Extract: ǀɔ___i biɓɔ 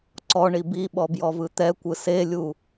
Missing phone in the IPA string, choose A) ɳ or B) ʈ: A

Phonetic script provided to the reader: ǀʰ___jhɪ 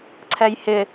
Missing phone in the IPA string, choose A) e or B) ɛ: B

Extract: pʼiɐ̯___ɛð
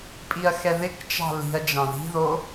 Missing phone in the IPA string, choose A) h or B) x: B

